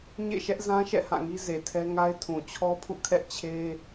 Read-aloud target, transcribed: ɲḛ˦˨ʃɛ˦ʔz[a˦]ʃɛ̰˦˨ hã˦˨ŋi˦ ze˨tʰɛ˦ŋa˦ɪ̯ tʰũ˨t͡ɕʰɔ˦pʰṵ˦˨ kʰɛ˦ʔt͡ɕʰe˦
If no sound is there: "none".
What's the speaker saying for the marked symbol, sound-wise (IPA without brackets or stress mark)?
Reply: ã˦